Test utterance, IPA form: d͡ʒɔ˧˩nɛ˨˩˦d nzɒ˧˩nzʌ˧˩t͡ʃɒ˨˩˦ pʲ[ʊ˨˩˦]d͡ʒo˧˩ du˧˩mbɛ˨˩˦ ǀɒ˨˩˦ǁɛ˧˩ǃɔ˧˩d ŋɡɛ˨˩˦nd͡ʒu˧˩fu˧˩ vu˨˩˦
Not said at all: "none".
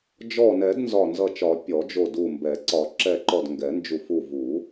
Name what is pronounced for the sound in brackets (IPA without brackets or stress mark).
ɔ˨˩˦